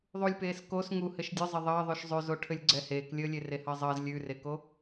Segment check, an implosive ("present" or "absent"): absent